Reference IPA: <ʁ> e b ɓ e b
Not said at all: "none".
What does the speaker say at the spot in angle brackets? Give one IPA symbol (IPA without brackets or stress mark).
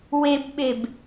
w